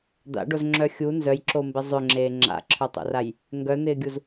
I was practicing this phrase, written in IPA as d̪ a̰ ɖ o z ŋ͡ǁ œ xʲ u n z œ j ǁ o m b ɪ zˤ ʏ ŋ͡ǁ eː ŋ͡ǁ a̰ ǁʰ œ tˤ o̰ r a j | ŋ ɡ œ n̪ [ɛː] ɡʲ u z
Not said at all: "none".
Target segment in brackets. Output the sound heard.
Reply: ɪː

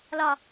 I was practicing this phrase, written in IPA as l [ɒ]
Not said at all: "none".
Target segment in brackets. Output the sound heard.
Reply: ɒ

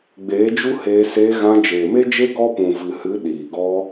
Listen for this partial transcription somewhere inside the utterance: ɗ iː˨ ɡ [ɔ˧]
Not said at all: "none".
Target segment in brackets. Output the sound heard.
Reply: ɔ˧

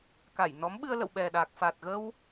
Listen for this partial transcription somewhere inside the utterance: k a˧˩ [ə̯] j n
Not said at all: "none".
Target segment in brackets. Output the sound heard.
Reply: none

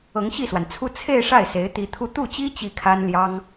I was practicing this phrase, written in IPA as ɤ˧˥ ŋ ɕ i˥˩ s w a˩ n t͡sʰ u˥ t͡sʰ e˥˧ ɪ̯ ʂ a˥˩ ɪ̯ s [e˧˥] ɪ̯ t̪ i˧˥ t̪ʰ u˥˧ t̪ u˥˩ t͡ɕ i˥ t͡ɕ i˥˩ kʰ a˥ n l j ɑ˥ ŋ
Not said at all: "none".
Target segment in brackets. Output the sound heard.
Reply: e˧˥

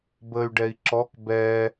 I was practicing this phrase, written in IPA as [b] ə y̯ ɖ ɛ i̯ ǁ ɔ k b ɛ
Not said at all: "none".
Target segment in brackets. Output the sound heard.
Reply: b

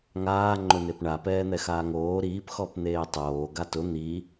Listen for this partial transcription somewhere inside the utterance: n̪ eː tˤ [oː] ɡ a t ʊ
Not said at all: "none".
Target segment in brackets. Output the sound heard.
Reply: oː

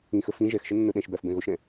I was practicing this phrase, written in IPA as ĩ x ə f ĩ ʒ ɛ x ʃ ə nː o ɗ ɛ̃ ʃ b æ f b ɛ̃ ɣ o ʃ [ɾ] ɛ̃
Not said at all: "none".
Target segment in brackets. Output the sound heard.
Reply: ɾ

